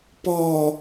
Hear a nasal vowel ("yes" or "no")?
no